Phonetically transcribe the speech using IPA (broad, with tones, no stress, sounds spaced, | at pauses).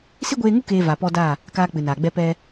s i˦ ɡʷ eː˧ ŋ u˦ k eː˨ v a˨ p ɔ˧ d a˦˨ | k aː˦ k͡p ɨ˨ n aː˨ ɡ͡b ɛ˦ p ɛ˧